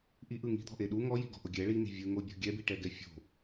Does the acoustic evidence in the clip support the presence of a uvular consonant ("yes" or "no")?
no